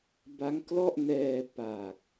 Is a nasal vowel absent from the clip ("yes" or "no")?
yes